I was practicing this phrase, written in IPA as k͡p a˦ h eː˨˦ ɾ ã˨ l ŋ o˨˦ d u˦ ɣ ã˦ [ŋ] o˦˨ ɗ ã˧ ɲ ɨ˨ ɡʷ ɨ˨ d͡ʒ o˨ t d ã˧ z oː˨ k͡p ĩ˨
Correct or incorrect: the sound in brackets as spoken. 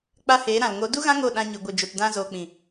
correct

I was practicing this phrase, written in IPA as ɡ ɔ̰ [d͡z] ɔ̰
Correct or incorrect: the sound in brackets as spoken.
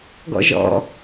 incorrect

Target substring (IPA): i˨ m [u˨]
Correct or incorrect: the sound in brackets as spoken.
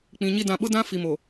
incorrect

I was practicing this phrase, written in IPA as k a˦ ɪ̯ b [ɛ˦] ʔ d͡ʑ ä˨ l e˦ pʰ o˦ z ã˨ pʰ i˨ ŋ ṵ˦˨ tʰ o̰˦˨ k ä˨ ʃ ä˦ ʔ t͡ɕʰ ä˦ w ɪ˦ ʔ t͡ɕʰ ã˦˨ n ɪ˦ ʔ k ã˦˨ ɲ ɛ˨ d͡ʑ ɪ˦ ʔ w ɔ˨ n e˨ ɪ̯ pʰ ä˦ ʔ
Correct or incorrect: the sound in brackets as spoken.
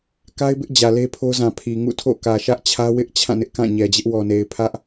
incorrect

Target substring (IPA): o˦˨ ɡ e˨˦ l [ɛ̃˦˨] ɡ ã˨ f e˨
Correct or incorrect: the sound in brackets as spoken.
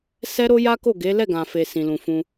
incorrect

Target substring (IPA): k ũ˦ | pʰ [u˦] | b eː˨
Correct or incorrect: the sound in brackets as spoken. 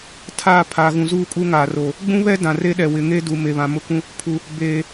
incorrect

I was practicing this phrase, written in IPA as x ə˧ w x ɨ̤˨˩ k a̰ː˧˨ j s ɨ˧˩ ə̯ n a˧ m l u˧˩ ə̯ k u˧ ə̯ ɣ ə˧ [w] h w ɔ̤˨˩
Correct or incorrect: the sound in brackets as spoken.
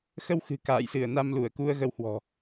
correct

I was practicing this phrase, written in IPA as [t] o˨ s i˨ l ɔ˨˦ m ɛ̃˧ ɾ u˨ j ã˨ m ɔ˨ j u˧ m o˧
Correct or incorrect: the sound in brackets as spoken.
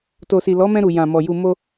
correct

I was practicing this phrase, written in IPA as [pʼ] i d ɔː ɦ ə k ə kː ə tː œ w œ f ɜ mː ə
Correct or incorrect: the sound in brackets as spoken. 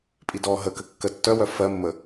correct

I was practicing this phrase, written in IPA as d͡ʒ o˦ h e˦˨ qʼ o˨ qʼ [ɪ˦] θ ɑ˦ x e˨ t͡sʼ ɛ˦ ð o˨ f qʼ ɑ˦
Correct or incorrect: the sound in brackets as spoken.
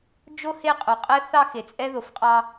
incorrect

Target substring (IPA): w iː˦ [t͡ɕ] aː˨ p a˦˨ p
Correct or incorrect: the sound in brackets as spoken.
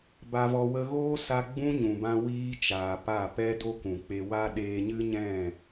incorrect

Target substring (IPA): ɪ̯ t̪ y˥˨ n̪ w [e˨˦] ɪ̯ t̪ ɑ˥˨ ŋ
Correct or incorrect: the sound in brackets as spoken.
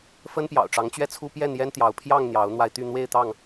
incorrect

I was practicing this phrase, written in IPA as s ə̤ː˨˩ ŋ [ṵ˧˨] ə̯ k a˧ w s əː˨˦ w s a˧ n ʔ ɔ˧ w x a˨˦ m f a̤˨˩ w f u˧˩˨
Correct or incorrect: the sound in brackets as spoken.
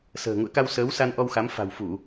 correct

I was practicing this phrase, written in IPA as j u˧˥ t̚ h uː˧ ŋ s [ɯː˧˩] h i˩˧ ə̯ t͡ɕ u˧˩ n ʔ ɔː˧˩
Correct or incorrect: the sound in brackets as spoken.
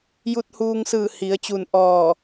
correct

